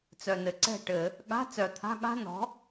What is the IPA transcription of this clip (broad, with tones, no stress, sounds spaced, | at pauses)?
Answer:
t͡s œ˨˩ n ɘ˨˩ ǀ ɛ̤˥˩ ʈ ɘ˧˩˧ | ɠ a̤˧˥˧ t͡s œ˨˩ t̪ʰ a̤˧˥˧ ɠ a̤˥ n ɔ̤˩˥